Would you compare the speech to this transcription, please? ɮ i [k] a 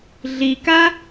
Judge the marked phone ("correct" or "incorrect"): correct